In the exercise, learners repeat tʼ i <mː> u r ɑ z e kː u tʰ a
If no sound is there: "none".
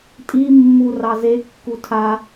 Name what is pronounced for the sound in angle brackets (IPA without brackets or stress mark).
mː